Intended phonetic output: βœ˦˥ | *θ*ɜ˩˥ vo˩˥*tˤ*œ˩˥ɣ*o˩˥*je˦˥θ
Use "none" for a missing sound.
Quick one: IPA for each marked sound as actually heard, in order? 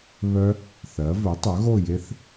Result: θ, tˤ, o˥˨

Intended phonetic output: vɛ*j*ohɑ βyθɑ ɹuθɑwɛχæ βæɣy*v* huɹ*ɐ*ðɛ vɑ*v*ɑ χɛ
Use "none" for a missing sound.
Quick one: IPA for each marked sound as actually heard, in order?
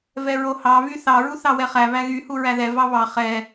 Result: ɹ, none, æ, β

